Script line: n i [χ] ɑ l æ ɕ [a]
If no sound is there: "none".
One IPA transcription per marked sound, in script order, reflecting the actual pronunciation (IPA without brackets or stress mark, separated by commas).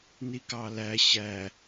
k, æ